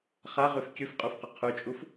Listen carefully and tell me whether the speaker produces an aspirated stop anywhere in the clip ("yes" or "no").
yes